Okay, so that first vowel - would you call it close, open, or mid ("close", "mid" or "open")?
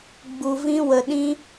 close